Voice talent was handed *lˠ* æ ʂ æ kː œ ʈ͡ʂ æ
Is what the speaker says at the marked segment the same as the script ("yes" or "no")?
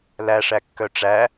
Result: no